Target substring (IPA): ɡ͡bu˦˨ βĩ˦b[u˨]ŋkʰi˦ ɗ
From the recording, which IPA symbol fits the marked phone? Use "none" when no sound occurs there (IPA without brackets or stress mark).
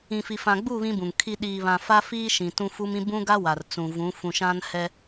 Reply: ũ˨